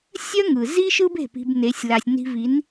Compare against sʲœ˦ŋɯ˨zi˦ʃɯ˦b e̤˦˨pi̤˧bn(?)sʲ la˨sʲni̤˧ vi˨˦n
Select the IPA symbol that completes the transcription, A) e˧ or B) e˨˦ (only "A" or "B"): B